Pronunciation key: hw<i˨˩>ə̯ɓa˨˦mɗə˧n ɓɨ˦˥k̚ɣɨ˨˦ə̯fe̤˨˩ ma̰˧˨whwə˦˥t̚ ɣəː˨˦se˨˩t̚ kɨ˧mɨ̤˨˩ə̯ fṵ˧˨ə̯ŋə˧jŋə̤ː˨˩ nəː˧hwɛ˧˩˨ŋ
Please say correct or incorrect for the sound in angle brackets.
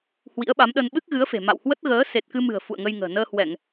incorrect